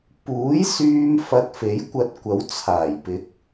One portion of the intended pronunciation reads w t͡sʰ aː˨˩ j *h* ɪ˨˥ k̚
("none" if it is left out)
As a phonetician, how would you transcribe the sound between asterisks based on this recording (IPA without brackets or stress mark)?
p